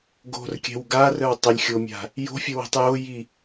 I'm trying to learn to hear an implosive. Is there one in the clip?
no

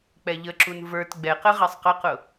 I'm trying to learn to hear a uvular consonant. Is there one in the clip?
yes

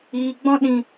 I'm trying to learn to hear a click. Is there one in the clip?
no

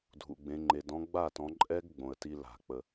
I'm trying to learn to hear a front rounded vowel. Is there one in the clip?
no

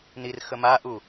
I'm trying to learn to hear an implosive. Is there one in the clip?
no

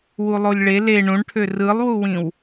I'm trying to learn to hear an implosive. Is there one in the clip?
no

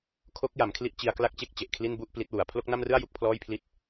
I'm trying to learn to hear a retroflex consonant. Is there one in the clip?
no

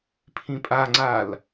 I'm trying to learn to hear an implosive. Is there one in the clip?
no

